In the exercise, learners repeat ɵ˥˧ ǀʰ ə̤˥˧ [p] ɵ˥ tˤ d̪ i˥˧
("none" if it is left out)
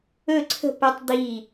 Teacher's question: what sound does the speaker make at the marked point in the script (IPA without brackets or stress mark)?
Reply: p